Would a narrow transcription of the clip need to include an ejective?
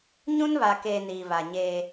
no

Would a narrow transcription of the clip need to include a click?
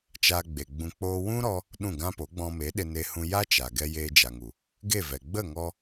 no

